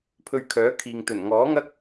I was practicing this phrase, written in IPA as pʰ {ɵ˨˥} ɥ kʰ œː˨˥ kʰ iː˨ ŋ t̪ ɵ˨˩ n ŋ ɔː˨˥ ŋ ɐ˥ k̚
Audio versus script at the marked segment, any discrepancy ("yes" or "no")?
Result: yes